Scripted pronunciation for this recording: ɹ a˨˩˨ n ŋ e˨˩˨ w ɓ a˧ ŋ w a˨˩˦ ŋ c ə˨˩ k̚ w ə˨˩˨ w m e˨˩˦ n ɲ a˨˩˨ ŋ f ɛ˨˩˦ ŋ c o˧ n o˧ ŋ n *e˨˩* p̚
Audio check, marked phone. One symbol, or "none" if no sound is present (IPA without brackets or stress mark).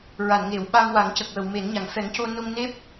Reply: e˦˥